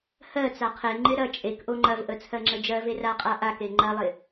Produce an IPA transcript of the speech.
h ɜ t͡s a qʰ e ŋ͡ǃ ɪ ɾ ɐ t͡ʃʼ e k ʔ o ŋ͡ǃ ɐ v ʔ ə t͡sʰ ɜ ŋ͡ǁ ə d͡ʒ ɜ v e r a qʼ a ʔ a k e ŋ͡ǃ ɐ lˠ ɪ

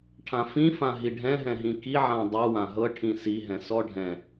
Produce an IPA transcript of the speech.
ʈʰ ã f ĩ f ã ɦ i ɖʱ ɛ̃ ɦ ɛ̃ ɦ ĩ k i ʕ ã dˤ u w ã ɦ ɤ ʈʰ ĩ s i ɦ ɛ̃ s ɔ ɖʱ ɛ̃

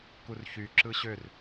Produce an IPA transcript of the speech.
k u r ç y ǁ ɯ ɕ ø r

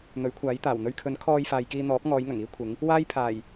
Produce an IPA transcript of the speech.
n̪ ɵ˨˥ ɥ kʷʰ aː˨˥ j t̪ aː˨˩ w n̪ ɵ˧ ɥ kʰ ɵ˨˥ n kʰ ɔː˧ j f aː˨ j k iː˧ n̪ ɔː˨˥ p̚ ŋ ɔː˨˧ j ŋ ɐ˨˩ ŋ iː˥ kʷʰ ɪ˨˥ ŋ | w aː˥ j pʰ aː˨˩ j

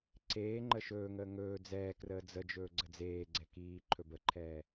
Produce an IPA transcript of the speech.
ǀ eː ŋ͡ǃ ə ʃ ɵː ŋ əː ŋ ɵː d͡z ɛː k r əː d͡z ə d͡ʒ ɵː ɡ͡ǀ ə d͡z eː ɡ͡ǀ ɛ k iː ǃʰ ɵ b ə ǃʰ ɛː

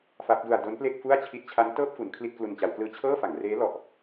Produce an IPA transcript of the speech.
f a˦˥ p̚ d u˧ a̯ d o˦˥ n p l e˥˩ k̚ f u˥˩ a̯ t͡ɕʰ i˦˥ t̚ t͡ɕʰ a˦˥ n t ɤː˥˩ p̚ f u˩˦ n kʰ l i˥˩ t̚ k l u˧ n t͡ɕ a˩˦ w k l ɯː˧ t͡ɕʰ ɤː˥˩ f a˩˦ ŋ r eː˦˥ l ɔ˨˩ ʔ

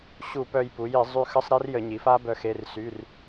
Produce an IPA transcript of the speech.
ɕ u˧˩˧ p œ˧ j p u˩˧ j i˧˩˧ zˤ y˧ x ə˧˥˧ sˤ ɾ e˦˥ r j ə˧˩˧ ɲ i˩˧ f a˦˥ b œ˧ x e˧˥˧ r s y˧˥˧ r

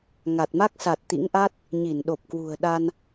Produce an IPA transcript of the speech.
ŋ a˨˩ t̚ m a˦˥ k̚ s a˨˩ t̚ t̪ ḭ˧˥ ŋ ʔ a˦˥ t̚ | ɲ i˧˩ n ɗ o˨˩ p̚ k w ṳ˨˩ ə̯ ɗ a˧ n

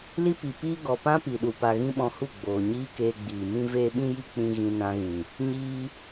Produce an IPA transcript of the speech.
l i˦ p i˨ p iː˦ ɡ ɔ˨ p ã˦ p i˨ ɗ u˨ p a˧ ɣ ĩ˦ ɓ ɔ̃˧ h u˦˨ ɡ͡b oː˨ ɲ iː˦ k eː˧ ɡ͡b iː˨ m ĩ˦ v eː˦ ɓ ĩ˦ j i˦ k͡p ĩ˧ ɣ ĩ˧ n ã˧ ɣ ĩ˨ | ɲ iː˦

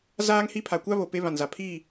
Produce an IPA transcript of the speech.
z aː˦ ŋ h i˦ pʰ a˨ kʷ a˦ β o˨ p e˦ β ã˨ n z a˨ pʰ iː˦˨

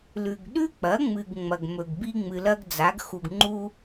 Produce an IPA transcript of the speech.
l ʉ˨ ɡ ɗ ʉ˥ k͡p ɐ˩˥ ŋ͡m ɨ˨ ɡ ŋ͡m ɐ˨ ɡ m ɵ˨ ɡ b i˥ ŋ͡m ɨ˨ l ɐ˥ ɡ d͡z a˩˥ ɡ x u˨ ɡ ŋ͡ǃ u˥

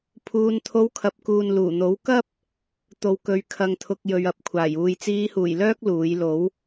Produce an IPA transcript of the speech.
pʰ uː˧ n t̪ʰ o˧ w kʰ ɐ˨ p̚ k uː˨ n l uː˨˩ n̪ o˨˥ w k ɐ˥ p̚ | t̪ o˨ w k ɵ˨˧ ɥ kʰ ɐ˨ ŋ t̪ʰ ʊ˨ k̚ j ɵ˨ ɥ ɐ˨˥ p̚ kʷʰ aː˨˩ j uː˨˧ j t͡s iː˧ h uː˨˩ j l œː˥ k̚ l uː˨˥ j l o˨˥ w

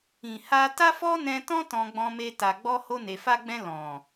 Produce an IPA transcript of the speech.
ĩ˨ h a˧ t a˦ f ɔ˦ n ɛ̃˧ t ɔ̃˦ t ɔ̃˧ ɡ͡b ɔ̃˧ m e˧ t a˨ ɡ͡b ɔ˧ h o˧ n e˨ f a˧ ɡ͡b ɛ̃˧ l ɔ̃˨

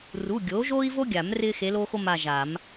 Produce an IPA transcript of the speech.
r u˩˧˩ ɡʲ oː˩˥ ʒ oː˥ i̯ v o˥ ɡʲ a˨˩˦ m r ɪː˥ x e˧˥ l oː˥ x o˥ m a˦˨ ʒ a˨˩˦ m

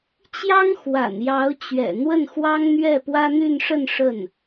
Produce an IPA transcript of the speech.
t͡ɕ j ɑ˥ ŋ x w a̰˨˩ n j ɑ˧˥ ʊ̯ t͡ɕ ɥ ɛ̰˨˩ n̪ w ə˥˩ n x w ɑ˥ ŋ n̪ ɥ ɛ˥˩ p w ä˥ n̪ y˥˧ n ʂ ə˥˧ n ʂ ə˥˩ n

